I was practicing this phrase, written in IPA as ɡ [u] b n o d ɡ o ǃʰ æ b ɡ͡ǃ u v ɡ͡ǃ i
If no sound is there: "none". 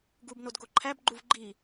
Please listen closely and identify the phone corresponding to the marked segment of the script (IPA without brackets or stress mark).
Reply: u